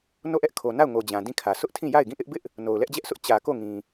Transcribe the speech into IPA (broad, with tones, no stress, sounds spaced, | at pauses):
n o˦˨ ʔ ɛ˦ ʔ kʰ o˨ n a˦˨ ʊ̯ ŋ o˨ d͡ʑ ã˨ d ĩ˦˨ kʰ ä˨ sʰ ʊ˦ ʔ tʰ ĩ˦˨ j a˦˨ ɪ̯ ɡ ĩ˦˨ ʔ ɪ˦ ʔ b ɪ˦ ʔ | n o˨ ʊ̯ l ɛ˦ ʔ d͡ʑ ɛ˦ ʔ s ʊ˦ ʔ t͡ɕ ä˨ k o˦˨ ŋ ĩ˨